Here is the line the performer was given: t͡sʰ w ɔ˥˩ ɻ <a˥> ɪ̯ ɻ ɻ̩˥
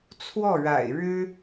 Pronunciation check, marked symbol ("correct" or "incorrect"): incorrect